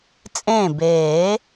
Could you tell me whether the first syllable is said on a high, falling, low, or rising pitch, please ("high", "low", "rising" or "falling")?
falling